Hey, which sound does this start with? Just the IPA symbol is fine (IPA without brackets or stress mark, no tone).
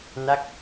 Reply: n